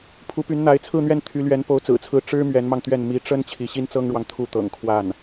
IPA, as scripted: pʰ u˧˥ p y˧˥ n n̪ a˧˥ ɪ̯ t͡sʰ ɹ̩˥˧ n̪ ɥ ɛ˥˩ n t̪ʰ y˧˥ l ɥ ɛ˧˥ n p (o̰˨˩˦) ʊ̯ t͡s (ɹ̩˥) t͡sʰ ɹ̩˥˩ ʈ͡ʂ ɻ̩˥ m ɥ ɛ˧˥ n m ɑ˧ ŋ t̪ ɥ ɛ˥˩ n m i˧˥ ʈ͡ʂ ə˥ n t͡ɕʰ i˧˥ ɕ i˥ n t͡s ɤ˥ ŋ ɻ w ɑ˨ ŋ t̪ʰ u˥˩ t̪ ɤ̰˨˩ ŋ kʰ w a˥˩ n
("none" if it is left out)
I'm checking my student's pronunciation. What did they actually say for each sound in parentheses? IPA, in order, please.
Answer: o˧˥, ɹ̩˨˩

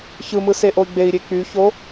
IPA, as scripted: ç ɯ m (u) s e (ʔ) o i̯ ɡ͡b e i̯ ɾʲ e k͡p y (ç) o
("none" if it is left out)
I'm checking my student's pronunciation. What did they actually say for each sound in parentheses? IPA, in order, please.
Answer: ɯ, ʔ, ç

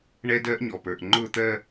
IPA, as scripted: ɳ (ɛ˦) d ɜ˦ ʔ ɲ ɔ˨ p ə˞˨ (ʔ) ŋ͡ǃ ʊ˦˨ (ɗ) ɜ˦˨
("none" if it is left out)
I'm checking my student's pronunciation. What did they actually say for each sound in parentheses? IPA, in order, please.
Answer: ɛ˦, ʔ, t̪

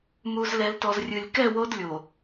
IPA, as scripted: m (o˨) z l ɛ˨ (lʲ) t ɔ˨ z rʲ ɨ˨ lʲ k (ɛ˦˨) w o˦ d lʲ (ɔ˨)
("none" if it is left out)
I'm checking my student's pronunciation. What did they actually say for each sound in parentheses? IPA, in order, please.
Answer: u˨, l, ɛ˦˨, o˨

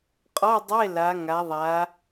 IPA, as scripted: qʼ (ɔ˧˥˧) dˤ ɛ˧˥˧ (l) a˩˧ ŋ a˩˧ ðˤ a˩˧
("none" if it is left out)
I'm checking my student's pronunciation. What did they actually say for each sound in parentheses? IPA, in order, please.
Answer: ɔ˧˥˧, l

